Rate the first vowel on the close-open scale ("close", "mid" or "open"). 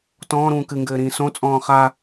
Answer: mid